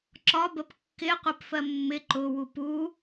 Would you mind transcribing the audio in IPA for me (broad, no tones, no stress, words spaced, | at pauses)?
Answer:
ǁɒbəp kːɪqʷɪp fɜmːɪ ǃʊwu pu